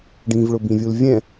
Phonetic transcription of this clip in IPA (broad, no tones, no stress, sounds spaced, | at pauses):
ɖ ĩ v ɭ ʊ b ĩ vʲ u l vʲ ɛ̃